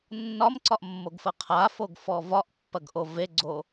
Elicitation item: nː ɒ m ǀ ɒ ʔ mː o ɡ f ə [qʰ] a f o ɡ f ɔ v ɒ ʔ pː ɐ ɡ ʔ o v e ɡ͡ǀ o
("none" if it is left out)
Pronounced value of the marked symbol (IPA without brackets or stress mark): qʰ